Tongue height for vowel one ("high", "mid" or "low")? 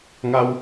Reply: low